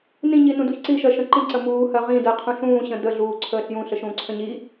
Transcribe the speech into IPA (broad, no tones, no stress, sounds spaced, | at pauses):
n ĩ ɲ i n ũ d u ç ǀ i ʃ ɜ ʃ ə̃ ǃ ĩ ǀ ə m uː h ɜ ʁ ĩ d ɜ qʰ ũ ɬ ũː ɕ ə̃ d ə ɮ uː ǀʰ əː ɬ j ũ ɬ ə ʃ ũː ǀʰ ə̃ ɲ i